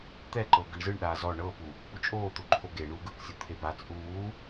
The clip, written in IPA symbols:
t̪ ɛ ǃ ɤ ɡ ɯ ɳ z ɯ ɳ ɗ aː z ɔ ɳ ɤ p u | p u t͡ʃʼ oː t̪ o ǃʰ o ɡ e ɳ uː ɡ ɯ k sʲ o t̪ʰ e b a t͡sʼ uː

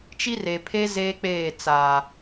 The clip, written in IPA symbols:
t͡ʃ i˦ r e˨ pʰ e˦ z eː˦ k͡p eː˦˨ t͡s aː˨

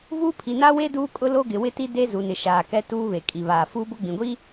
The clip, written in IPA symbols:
v u˦ pʰ i˨ n a˦ w e˦ d uː˦ kʼ ʊ˦ l o˦ ɡ ɪ˨ w ɪ˦ t i˦ d e˦ z u˨ n ɪ˨ ʃ aː˨ k ɛ˦ t uː˦ β e˨ kʼ i˨ β aː˨ f uː˦ b ʊ˦ ɡ͡b ĩ˨ ɡʷ i˦

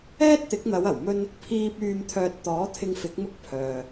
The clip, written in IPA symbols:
ɛː˥ t̚ t̪ ɪ˨˥ k̚ n̪ ɐ˨˧ w ɐ˨˩ w m ɵ˥ n | pʰ iː˧ p̚ yː˨ m t̪ʰ œː˨ t̚ t̪ ɔː˨˥ t̪ʰ ɪ˧ ŋ f ɪ˨˥ k̚ m ʊ˥ k̚ pʰ œː˨

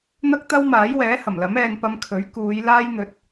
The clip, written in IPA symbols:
n̪ ɐ˥ k̚ t̪ ɐ˥ w m aː˨˥ j w ɛː˨˥ h ɐ˨˩ m l ɐ˨˥ m ɛː˧ n p ɐ˧ m kʰ ɵ˨˥ ɥ k uː˨˧ j l aː˥ j n̪ ɵ˨˥ t̚

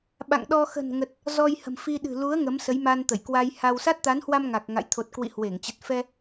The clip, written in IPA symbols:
ɓ a̰˧˨ ŋ ɗ ɔ˧ x ə̤˨˩ n ŋ ə˨˩ t̚ | z ɔ˧ j h ə̤˨˩ m f i˧ ɗ ɨ̤˨˩ l u˨˦ ə̯ ŋ ə˨˦ m s ə˨˦ j m a˧ n t̪ ə˧˩ j k w a˧ j h a˧ w s a˦˥ t̚ t̪ a˨˦ n h w a˧ m ŋ a˨˩ k̚ ŋ a̰˧˨ j t̪ʰ o˨˩ t̚ k w ḭ˧˨ h w e˧˩ ŋ t͡ɕ ə˨˩ t̚ f ɛ˧

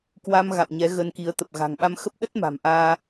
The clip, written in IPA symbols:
k w a˧ m ɣ a̰˧˨ w ɲ ɛ˨˦ ɣ ə˧ n k i˨˦ ə̯ t̪ ə˨˩ p̚ ɣ a̤˨˩ ŋ ɓ a˧ m x ə˦˥ p̚ ɗ ə˦˥ t̚ m a̤˨˩ m ʔ aː˧

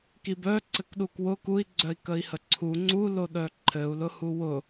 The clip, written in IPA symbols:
k i b œ ǀ ɘ k ɗ u k w ʊ k u i̯ ɡ͡ǀ œ i̯ k ə i̯ h ə ǀʰ u ŋ͡ǀ u l o ɗ œ ǃʰ ɘ u̯ l ʊ h u w ʊ

